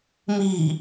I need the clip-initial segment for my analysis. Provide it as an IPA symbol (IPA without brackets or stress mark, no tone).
m